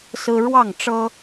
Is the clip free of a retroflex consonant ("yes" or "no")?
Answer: no